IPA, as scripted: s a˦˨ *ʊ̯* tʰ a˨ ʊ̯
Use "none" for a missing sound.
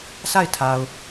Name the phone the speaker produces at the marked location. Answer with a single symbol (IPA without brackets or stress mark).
ɪ̯